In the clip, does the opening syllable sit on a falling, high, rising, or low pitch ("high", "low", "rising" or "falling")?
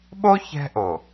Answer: high